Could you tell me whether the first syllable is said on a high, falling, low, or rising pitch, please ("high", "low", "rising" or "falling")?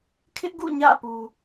high